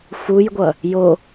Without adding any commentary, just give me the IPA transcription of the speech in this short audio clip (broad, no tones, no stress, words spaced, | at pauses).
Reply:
fujɡʷʌ | jo